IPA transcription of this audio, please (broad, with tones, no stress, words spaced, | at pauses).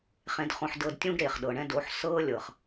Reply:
χẽ˧dχõ˧ħ dɤ˧dtʲũ˦ɡ ɾeː˨χɗɤ˨ɳɛ̃˦ do˨˦ħ sɤː˦lʲɤ˨χ